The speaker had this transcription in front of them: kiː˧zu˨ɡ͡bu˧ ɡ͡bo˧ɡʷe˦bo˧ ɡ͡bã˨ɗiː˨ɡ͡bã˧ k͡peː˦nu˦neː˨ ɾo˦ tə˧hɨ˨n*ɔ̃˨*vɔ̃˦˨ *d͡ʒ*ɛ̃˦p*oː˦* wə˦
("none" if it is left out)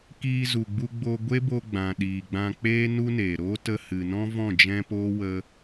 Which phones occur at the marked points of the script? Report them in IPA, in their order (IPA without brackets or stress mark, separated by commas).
ɔ̃˦, d͡ʒ, oː˦